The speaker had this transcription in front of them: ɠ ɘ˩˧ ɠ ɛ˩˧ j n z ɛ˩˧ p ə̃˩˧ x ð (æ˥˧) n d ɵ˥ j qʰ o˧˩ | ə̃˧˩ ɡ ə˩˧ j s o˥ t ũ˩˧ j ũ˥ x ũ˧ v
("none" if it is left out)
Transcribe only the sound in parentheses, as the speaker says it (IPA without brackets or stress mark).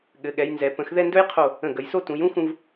ɛ˥˧